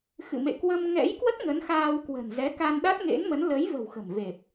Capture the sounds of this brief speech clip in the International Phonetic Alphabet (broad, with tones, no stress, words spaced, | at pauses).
xɨ̰˧˨mḛ˧˨ kwə˧mŋɛ̰˧˥j kwə˦˥t̚ ŋə˨˦nxaː˧wkwə̤˨˩n zɛ˨˦ka˧nɗa˦˥t̚ ŋḛ˧˥nmə˨˦n lə˨˦jvə̤˨˩w xə̤˨˩mve˨˩p̚